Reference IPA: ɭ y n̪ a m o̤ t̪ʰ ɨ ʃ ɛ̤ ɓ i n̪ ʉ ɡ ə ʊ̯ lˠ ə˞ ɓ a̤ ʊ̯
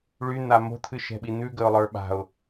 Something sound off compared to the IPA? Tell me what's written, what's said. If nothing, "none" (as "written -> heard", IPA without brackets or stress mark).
none